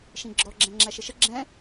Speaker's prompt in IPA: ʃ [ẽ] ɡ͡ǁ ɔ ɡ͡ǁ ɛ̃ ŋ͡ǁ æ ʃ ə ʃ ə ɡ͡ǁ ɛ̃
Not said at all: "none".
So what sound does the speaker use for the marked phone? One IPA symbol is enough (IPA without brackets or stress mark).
ĩ